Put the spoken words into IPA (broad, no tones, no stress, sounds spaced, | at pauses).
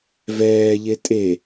v ɛː ʎ e tʼ e